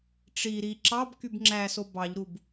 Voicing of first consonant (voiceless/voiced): voiceless